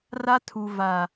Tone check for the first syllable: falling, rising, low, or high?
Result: high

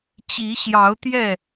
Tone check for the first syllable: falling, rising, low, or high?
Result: rising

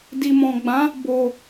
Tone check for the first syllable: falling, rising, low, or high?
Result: low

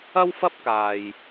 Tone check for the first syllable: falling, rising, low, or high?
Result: high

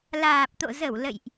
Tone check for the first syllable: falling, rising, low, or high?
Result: low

